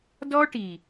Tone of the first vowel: high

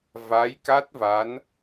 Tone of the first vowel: rising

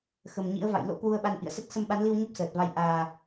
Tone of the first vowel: low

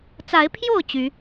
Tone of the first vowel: rising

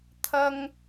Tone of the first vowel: high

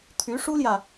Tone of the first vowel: rising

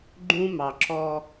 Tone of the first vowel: high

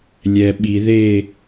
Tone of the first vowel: low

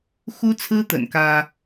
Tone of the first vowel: high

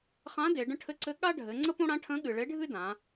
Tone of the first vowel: rising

